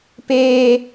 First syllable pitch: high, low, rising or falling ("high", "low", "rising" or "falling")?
high